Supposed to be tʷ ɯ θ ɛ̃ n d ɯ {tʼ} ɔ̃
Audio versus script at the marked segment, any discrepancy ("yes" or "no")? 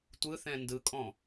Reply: yes